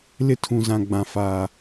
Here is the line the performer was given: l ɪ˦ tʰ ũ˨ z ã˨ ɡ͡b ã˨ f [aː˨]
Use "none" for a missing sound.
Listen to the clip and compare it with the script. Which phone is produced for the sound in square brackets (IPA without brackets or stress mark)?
aː˨